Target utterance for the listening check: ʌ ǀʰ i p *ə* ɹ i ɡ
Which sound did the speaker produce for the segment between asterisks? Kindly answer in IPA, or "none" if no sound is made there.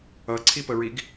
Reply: ə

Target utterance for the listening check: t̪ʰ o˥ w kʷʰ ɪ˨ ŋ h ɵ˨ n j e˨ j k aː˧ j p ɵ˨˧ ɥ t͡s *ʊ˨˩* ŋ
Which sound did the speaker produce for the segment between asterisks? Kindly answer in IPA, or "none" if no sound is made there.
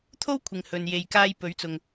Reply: ʊ˨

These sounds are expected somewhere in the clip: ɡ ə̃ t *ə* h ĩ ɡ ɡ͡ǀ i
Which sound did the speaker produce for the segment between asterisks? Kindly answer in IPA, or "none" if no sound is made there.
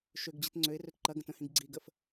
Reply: ə̃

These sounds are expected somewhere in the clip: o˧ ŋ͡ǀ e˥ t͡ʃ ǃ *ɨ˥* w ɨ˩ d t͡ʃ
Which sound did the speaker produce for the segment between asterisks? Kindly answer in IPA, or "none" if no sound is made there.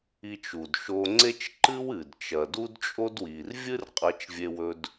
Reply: ɨ˥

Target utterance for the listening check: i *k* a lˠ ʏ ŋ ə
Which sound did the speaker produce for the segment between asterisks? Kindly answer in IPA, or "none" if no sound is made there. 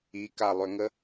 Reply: k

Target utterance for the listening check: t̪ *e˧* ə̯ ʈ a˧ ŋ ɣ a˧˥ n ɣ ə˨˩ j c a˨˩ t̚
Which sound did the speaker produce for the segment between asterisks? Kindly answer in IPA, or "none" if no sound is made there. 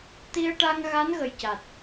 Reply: i˧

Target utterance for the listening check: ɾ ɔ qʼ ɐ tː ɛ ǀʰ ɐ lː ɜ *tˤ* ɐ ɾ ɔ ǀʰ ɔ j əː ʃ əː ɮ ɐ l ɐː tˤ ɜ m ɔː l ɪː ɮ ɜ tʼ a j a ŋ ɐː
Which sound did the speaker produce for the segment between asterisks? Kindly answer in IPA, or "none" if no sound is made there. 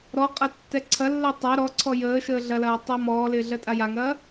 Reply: tˤ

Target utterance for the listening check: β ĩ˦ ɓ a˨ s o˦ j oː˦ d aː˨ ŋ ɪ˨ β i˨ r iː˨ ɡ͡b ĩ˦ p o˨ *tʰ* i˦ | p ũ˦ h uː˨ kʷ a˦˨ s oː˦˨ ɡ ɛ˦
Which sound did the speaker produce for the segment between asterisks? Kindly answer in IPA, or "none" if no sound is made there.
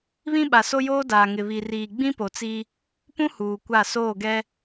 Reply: t͡s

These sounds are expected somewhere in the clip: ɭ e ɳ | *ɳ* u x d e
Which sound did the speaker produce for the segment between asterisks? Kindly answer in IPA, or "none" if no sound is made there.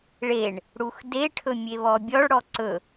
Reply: ɽ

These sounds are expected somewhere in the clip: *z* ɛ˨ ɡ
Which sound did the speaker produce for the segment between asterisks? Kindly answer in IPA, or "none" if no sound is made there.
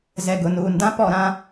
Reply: z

